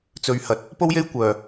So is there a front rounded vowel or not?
yes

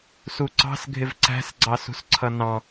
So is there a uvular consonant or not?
no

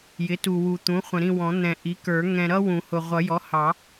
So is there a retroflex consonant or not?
no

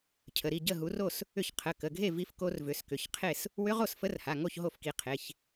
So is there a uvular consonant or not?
yes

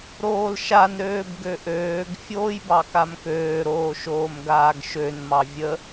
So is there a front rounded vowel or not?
yes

